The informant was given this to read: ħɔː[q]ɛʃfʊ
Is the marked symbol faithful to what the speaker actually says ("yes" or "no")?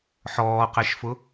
yes